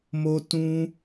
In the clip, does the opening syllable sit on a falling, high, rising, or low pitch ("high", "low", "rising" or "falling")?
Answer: high